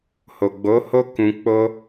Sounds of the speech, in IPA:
h o˨ ɡ͡b o˨˦ h o˦ k ũ˧ k͡p o˦

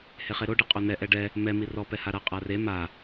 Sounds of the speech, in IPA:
h e χ e ɾ o ɖ i qʼ o n ɛ ʔ ɛ ɖ ɛ | m ɛ m i r ɔ p ɛ h a ɾ a qʼ a r e m a

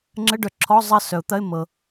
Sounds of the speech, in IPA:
ŋ͡ǁ ə˧˥˧ ɖ œ˨˩˦ ǁʰ ɔ˧˥˧ zˤ ɐ˥˩ s œ˨˩˦ ʊ̯ t̪ ɐ˧˥˧ ɪ̯ mː ɤ˨

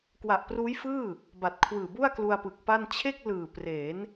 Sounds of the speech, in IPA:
k w a˨˩ ʔ p r uː˦˥ j f ɯː˥˩ | b a˨˩ t̚ kʰ w ɯː˨˩ b u˥˩ a̯ k l u˧ a̯ p ɯ˨˩ k̚ p a˥˩ n t͡ɕʰ e˥˩ k̚ l ɯː˨˩ p r eː˩˦ n

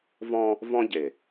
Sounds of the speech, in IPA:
v ɔ̃˦ | v ɔ̃˦ ɟ e˨

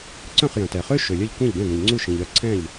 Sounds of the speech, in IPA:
ǀ œ̃˥˩ χ j œ̃˩ t ɛ˩ χ ø˥ ʃ ø˩ lʲ œ˥˩ ʎ kʷ ɛ̃˥˩ ʎ ɡ ɛ̃˥˩ ɡ ə̃˩ ʎ ŋ͡ǀ u˥˩ ʃ ĩ˩ ʎ œ˥˩ ǀʰ ɛ̃˥˩ ʎ

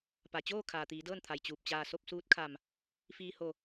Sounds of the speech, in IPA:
p a˩ t͡ɕ oː˥˨ kʰ aː˩ t̪ iː˩˧ d ɤː˥˨ n t̪ʰ a˩ j t͡ɕ uː˧˩ p̚ t͡ɕ aː˥˨ s o˥˨ p̚ s uː˧˥ t̚ kʰ a˧˩ m | f iː˧ h o˧˩

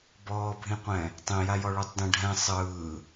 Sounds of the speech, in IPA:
b ɔː bʱ ĩ qʷ ɛ̃ | tˤ ẽ j a j ɔ ɭ u tˤ d ɛ̃ ɖʱ ɛ̃ sˤ ɯː

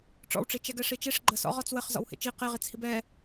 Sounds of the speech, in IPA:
ʈ͡ʂ ɔ̰ w ʈ͡ʂ i t͡ʃ ɛ ɡ ɛ ʂ i t͡ʃ e ʂ ɡ͡ǃ ə s ɔ̰ ʁ ɔ t͡s w ə χ z ɔ̰ w h ḛ t͡ʃ i q e ʁ i t͡s h i b ɛ

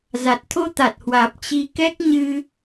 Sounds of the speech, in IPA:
z a˨˩ t̚ t̪ʰ o˧ t̪ a˨˩ t̚ h w aː˨˩ p̚ t͡ɕ i˨˦ k ɛ˦˥ k̚ ɲ ɨ˧

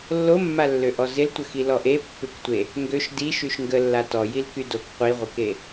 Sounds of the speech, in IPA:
lː o mː a lː ø ʔ ɔ z ɪ l tʷ ə x i l ɔ ʔ e pː ʏ k tʷ e | ŋ ɡ ø ʃ d i ʃ y ʃ ŋ ɡ ə lː a t ɔ j i l k y d o k qʷ i ʁʷ ɪ k e

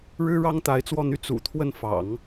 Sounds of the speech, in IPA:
ɻ ɻ̩˥ ɻ ɑ˥ ŋ t̪ a˧˥ ɪ̯ t͡s w ɔ˥˧ n̪ y˥˩ t͡s ṵ˨˩ t̪ʰ w ə˥˩ n f ɑ̰˨˩˦ ŋ

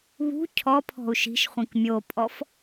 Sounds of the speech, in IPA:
β ṳ cʰ ɔ pʰ ɔ̤ u̯ ʃ i̤ ʃ χʷ ĩ k mʲ o pʼ ɔ f

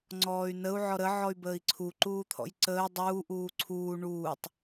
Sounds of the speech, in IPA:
ŋ͡ǀ ɔː y̯ n ə u̯ ʕ ɔ ɾ ə ʕ ɔ y̯ b əː i̯ ǀʰ u ǃ uː t̪ʰ ɔ̰ j ǀ əː dˤ uː ʔ uː ǀʰ uː ɳ uː tˤ

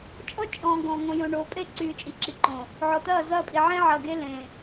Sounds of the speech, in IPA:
t͡ʃʼ ɔ˦ t͡ʃʼ ɔ̃ː˨ ɡ ɔ̃˨ ŋ õ˨ j õ˨ ɳ oː˨ pʼ e˦˨ ǀ yː˨ t͡ʃʼ i˨ ǁ i˨ ǃ õ˨ | ʕ ɔ˨ t ɐː˦˨ z ɐː˦˨ pʼ i˨ ʕ ẽ˦ ʕ ɐː˨ ɡ e˦ l ẽː˨

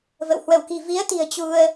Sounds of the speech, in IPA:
v ə̰˧˨ w h w ə˧˩ w k i̤˨˩ v i˨˦ ə̯ t̪ i̤˨˩ ə̯ t͡ɕ u˧ ə̯

